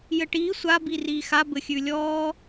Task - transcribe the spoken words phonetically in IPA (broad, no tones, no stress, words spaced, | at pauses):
jɘʈiː sʷa biriːxa bɘxʲʉlʲɔː